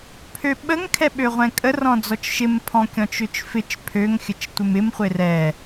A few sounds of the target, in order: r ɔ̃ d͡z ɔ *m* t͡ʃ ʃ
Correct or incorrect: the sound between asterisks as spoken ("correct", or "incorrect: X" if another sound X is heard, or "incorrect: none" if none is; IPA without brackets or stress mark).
incorrect: none